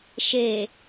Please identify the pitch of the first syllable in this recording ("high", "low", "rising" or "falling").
low